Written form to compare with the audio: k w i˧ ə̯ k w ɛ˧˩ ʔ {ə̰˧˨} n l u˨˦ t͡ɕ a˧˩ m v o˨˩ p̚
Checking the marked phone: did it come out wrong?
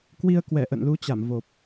no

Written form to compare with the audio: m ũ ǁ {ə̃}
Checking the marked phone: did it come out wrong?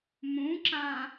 yes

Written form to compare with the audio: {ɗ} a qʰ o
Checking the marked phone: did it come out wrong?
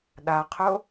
no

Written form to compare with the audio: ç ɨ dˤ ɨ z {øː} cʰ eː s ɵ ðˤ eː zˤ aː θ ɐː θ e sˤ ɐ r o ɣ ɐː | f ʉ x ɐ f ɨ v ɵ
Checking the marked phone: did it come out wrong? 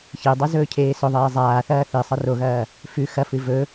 yes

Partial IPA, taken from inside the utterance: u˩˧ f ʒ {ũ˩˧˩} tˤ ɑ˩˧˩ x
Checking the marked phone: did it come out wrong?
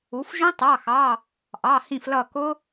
yes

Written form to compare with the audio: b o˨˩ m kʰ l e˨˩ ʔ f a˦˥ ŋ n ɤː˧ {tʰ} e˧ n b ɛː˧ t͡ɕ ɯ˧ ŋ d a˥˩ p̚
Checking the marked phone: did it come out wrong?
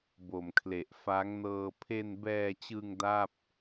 yes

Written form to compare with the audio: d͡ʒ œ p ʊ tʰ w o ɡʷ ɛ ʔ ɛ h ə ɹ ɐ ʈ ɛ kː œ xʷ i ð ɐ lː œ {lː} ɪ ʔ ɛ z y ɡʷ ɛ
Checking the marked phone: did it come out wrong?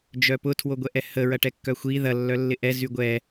no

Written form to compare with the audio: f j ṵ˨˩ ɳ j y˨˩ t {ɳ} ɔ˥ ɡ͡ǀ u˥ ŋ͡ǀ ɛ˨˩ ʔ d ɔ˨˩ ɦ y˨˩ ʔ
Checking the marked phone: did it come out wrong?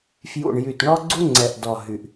no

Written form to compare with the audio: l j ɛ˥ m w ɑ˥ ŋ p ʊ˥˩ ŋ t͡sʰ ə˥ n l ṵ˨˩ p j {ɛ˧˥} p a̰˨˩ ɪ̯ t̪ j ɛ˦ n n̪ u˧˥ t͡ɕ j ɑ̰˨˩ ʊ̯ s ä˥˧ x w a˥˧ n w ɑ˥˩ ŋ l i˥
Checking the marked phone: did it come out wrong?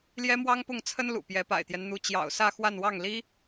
no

